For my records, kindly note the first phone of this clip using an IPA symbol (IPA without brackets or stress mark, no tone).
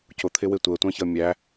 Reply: c